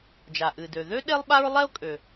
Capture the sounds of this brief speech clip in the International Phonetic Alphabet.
d͡ʒ a˩ ʔ ɨ˩ d ø˩ ð ø˥ ɗ e˥ lˠ ɓ a˥ ɹ lˠ ɛ˥ ʊ̯ kʼ ø˩

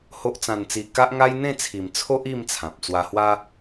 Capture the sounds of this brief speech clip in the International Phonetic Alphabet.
h o˦ ʔ t͡s ã˧ n t͡s i˧ k a˦ ʔ ŋ a˦ j n̪ ẽ˥˧ t͡sʰ i˨˩ m t͡sʰ o˦ ʔ i˥˧ m t͡sʰ ã˨ p̚ t͡s w a˧ h w a˦

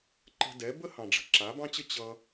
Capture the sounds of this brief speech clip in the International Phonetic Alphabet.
ǃ ə̤˧ d ɛ˨˦ b ə˦ h ɑ̃˨ ɖ͡ʐ ə̤˨ ǁ a˨˦ b ɑ̃˦ t͡ɕ ə˦ t͡ɕ ʌ˧

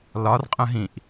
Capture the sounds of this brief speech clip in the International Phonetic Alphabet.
l ɒ r qʼ ə̃ ɦ ĩ ʔ

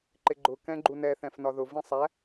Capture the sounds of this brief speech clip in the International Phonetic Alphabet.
ǃ ɪ ɡ͡ǃ ʊ k ɛ̃ ɡ͡ǃ u n ɛ θ ɛ̃ f n ɒ ð ʊ v ĩ sˤ æ

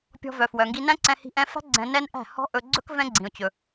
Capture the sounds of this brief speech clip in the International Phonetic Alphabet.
pʲ ɔ̤˧ v œ˨ f w œ˨ ŋ ɡ i˧ n æ̃˦ ǀ ɛ̃˧ h i̤˧ ʔ ɛ̃˧ f æ̤˦ ɡ͡ǀ ɛ̃˧ n ɛ˦ n ʔ æ̤˦˨ h ɔ̤˦ ʔ ɵ˧ ɡ͡ǀ ɵ˦ k v ɛ̃˦ ɡ͡ǀ ĩ˨ ʊ̯ t͡ɕ ɵ˨

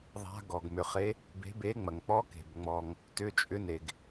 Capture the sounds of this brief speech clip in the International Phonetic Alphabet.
ðˤ a̤˧˥ ɡ ɔ˩ ɡ m ʏ˩ χ e˧˥ | b e̤˧˥ b e˧˥ ŋ͡m ɐ˩ ŋ k͡p ɔ˧˥ k e̤˩ b ŋ͡m ɔ˩ ŋ | t ʏ˧˥ t͡ʃʼ ʏ˧˥ n e˩ ɡ

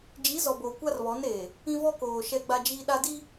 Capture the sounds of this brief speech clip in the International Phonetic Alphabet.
d͡ʒ i˨˦ z ɔ˨ b oː˨ kʷ a˦ r β ɔ˨˦ n eː˨ | ĩ˦ v ɔ˦ k oː˨ ʃ ɛ˦ ɡ͡b a˦ d͡ʒ iː˦ ɗ a˦ d i˦

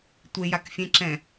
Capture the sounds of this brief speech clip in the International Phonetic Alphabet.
tʷ e j a k fʲ ɛ̃ ǁ ɛ̃

